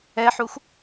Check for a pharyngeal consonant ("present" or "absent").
present